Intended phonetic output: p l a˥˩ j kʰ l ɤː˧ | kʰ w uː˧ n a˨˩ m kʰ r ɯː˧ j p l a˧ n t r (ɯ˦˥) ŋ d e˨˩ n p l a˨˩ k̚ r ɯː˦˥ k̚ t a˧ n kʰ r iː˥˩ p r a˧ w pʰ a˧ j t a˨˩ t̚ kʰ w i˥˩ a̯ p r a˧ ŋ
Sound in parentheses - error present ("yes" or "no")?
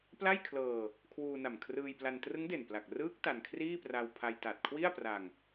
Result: no